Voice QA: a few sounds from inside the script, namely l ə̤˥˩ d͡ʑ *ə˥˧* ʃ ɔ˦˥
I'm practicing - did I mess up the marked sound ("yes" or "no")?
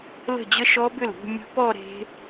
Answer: no